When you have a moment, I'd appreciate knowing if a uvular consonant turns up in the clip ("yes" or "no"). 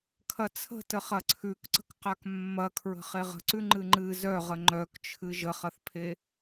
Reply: yes